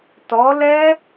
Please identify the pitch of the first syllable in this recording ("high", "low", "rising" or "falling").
rising